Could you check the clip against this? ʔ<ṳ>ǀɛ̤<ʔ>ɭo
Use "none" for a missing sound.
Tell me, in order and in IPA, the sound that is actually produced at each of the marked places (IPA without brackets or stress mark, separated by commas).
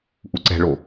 u, none